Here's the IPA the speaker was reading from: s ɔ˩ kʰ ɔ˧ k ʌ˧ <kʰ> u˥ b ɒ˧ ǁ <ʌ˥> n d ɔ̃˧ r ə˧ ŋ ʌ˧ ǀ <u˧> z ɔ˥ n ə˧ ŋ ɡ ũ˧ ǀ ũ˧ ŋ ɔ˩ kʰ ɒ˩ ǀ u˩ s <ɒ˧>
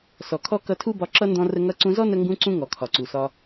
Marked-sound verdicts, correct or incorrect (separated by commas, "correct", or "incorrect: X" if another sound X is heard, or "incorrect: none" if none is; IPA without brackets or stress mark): incorrect: tʰ, correct, incorrect: ũ˧, correct